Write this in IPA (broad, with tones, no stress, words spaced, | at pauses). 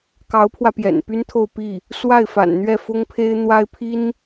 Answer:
kɑ˧˥ʊ̯pʰwä˧ pjɛ̰˨˩npy˥nt̪ʰo˥˧ʊ̯ pi˥˩ | swa˥˩ɪ̯fa̰˨˩nn̪ɥɛ˥˩ fʊ˥ŋpʰe˥ɪ̯ n̪wa˥ɪ̯pʰi˥n